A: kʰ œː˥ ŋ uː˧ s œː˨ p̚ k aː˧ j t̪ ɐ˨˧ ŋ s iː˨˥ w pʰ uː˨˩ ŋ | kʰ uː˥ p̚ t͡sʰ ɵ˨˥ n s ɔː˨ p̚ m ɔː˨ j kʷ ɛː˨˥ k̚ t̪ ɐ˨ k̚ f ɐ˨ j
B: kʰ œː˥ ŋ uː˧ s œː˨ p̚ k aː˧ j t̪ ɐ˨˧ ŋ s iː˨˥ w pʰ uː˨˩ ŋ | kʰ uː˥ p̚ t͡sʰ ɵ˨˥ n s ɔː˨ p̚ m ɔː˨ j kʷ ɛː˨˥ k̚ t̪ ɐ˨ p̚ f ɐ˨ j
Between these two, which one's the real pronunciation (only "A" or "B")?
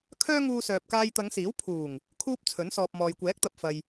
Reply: B